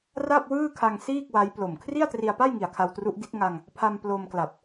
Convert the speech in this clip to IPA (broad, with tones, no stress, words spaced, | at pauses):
ra˥˩p̚wɯː˥˩kʰa˧ŋ siː˥˩k̚wa˦˥j plo˨˩m kʰri˥˩a̯tri˧a̯pa˥˩jŋi˨˩a̯ kʰa˧wtru˦˥ʔdi˦˥t̚ ŋa˧ŋ | pʰa˧m plo˧mkla˨˩p̚